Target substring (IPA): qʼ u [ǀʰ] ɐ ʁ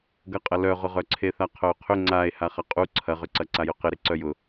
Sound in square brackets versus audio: correct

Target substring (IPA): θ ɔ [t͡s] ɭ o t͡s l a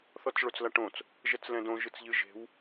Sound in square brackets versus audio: correct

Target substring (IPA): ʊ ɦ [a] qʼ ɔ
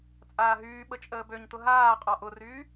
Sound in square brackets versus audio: incorrect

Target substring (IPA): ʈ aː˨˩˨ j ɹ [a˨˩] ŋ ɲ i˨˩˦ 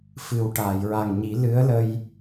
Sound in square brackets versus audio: correct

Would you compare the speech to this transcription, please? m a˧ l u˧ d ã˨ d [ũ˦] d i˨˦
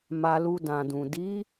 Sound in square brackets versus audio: incorrect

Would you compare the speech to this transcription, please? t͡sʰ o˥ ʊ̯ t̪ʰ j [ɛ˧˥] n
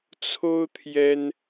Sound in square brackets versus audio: incorrect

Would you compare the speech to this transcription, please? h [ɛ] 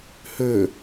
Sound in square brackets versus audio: incorrect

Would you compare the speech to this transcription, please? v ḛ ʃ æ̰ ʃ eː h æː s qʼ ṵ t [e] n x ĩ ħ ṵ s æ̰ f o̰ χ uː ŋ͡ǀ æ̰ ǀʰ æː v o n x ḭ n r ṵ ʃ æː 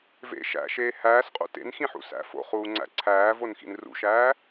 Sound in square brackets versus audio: incorrect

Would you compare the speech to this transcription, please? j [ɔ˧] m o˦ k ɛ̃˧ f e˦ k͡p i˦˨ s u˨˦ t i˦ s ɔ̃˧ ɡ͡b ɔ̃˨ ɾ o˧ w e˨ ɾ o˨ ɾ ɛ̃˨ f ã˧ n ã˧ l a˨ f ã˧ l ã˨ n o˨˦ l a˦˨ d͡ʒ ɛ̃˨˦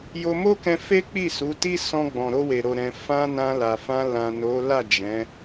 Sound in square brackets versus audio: incorrect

